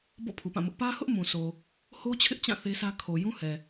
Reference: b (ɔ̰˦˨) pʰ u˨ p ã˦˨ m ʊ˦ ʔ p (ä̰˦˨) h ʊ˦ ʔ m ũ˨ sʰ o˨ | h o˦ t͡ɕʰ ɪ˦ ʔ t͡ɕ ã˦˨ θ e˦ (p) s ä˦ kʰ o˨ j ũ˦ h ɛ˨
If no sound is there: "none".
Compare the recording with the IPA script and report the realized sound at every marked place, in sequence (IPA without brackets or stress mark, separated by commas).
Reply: ɔ̰˦˨, ä˦, none